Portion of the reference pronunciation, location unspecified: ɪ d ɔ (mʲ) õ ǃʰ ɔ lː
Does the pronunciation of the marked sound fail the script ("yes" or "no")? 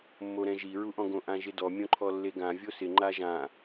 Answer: no